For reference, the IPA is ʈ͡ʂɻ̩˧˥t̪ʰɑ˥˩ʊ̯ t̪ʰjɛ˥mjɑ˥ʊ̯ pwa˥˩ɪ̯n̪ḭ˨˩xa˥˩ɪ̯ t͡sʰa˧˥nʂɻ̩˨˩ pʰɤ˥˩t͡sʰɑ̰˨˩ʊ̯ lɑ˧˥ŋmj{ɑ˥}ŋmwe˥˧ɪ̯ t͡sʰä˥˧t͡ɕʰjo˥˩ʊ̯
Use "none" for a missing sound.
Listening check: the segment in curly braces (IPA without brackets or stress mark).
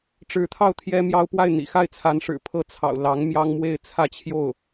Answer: ɑ˥